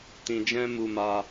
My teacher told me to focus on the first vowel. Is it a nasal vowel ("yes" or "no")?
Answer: yes